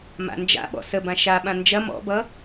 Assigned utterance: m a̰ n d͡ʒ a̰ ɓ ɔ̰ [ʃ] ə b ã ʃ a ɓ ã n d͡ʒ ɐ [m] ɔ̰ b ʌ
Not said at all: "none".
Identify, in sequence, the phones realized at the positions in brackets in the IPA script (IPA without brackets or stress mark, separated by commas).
s, m